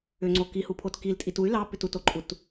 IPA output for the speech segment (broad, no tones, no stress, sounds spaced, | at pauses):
ʏ ŋ͡ǀ o k i h u pʰ o t k i l tʼ i t u y̯ l ɑ p ʏ t u t o ǃʼ u t